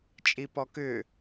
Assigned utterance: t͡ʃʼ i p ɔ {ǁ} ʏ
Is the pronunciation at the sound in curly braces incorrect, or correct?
incorrect